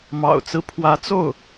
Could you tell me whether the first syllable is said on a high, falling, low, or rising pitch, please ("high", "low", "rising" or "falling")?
low